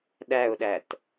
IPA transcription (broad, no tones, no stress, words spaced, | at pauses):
ɗæʊ̯ɗæt